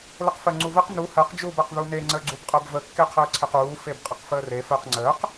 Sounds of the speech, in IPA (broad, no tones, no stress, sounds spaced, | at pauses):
l ə q f ɜ ŋ͡ǀ u v ə q n u h ɜ q d͡ʒ uː b ɜ q ð u n e ŋ͡ǀ əː ɡ͡ǀ u b qʼ ɜ b v ə kː e qʰ əː ǀʰ e q uː f e b qʼ ə q f əː r e f ɜ q ŋ͡ǀ əː q